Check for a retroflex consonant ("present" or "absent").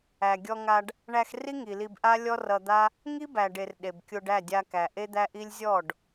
present